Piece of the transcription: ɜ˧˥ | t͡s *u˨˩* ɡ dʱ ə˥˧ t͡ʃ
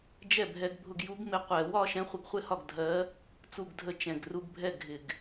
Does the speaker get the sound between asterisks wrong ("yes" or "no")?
yes